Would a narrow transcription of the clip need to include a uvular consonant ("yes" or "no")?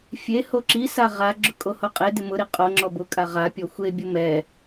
yes